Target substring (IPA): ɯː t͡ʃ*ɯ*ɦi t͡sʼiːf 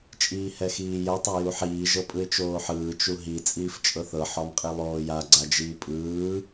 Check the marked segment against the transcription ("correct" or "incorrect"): incorrect